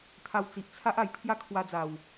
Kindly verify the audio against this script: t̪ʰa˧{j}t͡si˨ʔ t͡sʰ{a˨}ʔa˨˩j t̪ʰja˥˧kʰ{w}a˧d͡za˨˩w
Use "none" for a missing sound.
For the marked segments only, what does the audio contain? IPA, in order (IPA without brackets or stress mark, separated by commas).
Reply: w, a˦, w